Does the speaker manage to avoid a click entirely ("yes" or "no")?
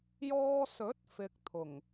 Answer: yes